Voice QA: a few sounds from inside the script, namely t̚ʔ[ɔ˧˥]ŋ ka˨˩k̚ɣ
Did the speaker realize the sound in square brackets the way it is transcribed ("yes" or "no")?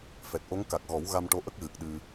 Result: no